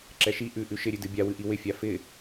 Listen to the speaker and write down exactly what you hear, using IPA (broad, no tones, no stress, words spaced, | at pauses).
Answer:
ǁɛʃi ʔʉ ʔʉʃɪɾʲʉdɨ bʲawɨʔi wɪfʲa fɪ